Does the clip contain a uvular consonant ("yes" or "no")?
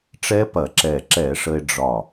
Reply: no